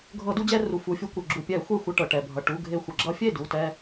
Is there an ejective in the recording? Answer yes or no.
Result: no